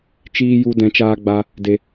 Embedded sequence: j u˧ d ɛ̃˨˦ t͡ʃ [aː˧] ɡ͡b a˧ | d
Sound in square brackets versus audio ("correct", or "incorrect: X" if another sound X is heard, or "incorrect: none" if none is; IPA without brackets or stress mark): correct